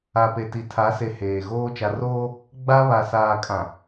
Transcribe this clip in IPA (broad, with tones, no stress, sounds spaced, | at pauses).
a˨ p e˨ t i˨ tʰ a˨˦ s e˨ h eː˨ ɣ oː˦ t͡ʃ a˨ r oː˦ | ɡ͡b a˦ β a˨ s aː˨ kʼ ã˨